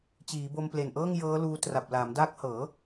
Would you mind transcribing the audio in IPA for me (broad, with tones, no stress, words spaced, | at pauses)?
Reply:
t͡ɕiː˩˦bo˧mple˨˩nʔɤː˥˩ŋ jɤː˦˥luː˧ tra˨˩p̚laː˩˦mdaː˦˥k̚hɤː˩˦